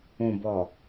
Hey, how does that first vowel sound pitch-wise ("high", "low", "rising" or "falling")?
low